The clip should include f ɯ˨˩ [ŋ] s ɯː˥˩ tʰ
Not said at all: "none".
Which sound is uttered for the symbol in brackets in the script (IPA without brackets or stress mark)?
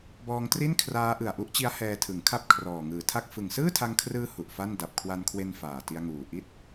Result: ŋ